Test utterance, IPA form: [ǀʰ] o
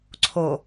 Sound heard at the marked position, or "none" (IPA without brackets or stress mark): ǀʰ